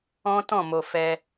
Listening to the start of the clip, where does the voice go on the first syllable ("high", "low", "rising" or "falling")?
high